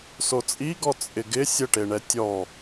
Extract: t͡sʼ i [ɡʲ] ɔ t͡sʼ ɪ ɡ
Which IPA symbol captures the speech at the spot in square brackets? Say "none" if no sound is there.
ɡ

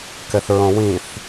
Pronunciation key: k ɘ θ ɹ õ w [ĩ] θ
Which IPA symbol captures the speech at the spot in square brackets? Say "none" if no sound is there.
ĩ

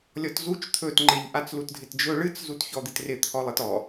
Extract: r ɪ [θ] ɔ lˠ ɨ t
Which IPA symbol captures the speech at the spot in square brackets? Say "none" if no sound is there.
t̪ʰ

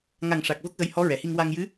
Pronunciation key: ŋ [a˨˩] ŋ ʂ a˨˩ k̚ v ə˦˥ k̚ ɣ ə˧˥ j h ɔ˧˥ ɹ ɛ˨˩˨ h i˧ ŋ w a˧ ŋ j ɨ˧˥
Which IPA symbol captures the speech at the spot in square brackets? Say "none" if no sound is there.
a˨˩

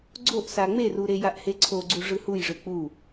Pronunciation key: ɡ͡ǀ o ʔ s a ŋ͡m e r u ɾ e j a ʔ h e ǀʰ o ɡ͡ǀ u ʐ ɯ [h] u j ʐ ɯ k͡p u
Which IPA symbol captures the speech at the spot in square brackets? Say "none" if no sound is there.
h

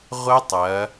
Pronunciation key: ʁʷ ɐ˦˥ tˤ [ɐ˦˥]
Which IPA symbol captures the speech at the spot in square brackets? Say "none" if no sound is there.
ɐ˩˧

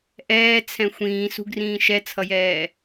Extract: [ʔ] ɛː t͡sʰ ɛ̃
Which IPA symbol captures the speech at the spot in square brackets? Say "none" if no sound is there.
ʔ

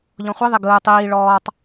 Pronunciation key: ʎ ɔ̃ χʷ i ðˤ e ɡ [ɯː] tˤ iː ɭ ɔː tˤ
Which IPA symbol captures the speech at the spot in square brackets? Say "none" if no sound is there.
ɯː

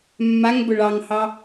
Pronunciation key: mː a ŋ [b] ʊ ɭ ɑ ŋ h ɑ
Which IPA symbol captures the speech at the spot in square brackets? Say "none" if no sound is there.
b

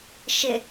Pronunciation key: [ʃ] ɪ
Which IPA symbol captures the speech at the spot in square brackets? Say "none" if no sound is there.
ʃ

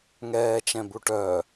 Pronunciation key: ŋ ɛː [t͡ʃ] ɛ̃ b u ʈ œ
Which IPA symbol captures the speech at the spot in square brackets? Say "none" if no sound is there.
t͡ʃ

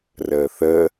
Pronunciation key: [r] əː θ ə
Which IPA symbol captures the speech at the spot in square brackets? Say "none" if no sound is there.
r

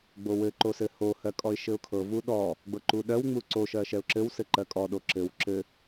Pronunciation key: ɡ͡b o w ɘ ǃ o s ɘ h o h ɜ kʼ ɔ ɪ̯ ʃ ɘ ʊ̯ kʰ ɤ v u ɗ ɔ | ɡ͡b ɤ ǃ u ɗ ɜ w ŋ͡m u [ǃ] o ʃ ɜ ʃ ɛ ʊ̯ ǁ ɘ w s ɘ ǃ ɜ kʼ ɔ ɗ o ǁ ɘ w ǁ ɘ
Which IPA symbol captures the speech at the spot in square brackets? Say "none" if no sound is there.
ǀ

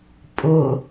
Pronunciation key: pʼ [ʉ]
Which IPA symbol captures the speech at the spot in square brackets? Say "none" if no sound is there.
ʊ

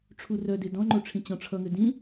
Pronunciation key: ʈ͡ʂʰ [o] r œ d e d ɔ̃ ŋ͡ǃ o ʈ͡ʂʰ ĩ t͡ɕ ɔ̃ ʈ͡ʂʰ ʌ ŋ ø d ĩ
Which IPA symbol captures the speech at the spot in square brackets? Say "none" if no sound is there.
u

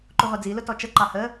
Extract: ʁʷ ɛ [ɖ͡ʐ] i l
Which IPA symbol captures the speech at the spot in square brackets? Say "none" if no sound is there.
d͡z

